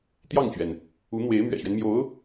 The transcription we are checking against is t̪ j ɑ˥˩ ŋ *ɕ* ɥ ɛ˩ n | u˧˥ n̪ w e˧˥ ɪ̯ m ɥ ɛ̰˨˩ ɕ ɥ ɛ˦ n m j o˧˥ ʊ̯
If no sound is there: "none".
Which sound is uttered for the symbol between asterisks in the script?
t͡ɕ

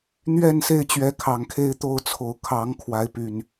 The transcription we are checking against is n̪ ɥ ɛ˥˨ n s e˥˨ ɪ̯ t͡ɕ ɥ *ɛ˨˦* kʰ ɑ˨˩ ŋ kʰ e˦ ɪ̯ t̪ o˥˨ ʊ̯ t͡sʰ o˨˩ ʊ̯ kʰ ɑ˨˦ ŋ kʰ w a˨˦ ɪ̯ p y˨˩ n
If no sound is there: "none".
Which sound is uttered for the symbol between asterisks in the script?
ɛ˨˦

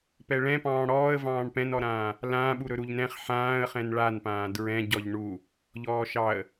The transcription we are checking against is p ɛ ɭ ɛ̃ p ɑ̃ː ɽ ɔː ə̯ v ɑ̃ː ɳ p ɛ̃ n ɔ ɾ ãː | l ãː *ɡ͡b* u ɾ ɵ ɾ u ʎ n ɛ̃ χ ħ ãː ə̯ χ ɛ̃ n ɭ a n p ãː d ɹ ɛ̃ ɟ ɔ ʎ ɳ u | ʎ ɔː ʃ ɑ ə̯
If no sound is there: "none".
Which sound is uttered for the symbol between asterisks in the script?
ɓ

